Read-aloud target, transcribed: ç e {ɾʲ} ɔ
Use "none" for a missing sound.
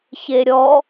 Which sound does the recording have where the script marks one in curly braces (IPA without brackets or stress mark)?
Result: ɾʲ